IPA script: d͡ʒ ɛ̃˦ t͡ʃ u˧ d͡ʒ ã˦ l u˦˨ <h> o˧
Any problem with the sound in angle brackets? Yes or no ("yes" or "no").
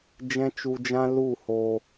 no